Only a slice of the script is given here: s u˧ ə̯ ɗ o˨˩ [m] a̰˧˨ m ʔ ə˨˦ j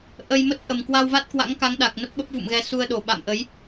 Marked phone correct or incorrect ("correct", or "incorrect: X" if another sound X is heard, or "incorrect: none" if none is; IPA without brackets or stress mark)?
incorrect: ɓ